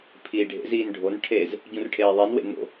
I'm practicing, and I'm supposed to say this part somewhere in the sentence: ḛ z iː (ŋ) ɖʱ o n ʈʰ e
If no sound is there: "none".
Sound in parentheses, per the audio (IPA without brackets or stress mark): n